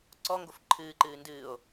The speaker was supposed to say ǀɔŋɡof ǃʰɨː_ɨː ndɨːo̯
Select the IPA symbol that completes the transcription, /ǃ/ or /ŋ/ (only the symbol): ǃ